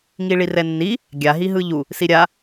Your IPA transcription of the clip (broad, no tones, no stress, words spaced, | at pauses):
ŋiɭirɛnːi | ɡʲa ɦiɦɯʎu | siɾʲa